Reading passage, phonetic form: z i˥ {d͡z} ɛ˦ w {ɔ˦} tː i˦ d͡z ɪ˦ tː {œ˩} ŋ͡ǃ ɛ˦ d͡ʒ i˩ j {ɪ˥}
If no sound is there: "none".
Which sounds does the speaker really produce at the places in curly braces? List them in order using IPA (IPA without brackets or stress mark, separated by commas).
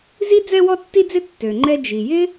d͡z, ɔ˦, ø˩, ɪ˥